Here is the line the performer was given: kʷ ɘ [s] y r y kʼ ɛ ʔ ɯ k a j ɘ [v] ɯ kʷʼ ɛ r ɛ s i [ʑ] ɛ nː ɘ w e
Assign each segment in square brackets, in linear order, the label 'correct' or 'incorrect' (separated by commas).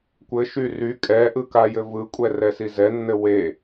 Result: incorrect, correct, incorrect